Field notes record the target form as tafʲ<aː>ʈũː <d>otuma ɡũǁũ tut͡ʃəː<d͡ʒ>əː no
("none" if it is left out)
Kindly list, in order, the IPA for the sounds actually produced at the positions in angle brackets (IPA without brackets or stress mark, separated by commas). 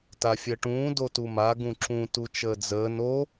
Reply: əː, d, d͡z